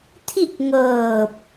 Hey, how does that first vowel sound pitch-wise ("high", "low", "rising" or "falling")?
falling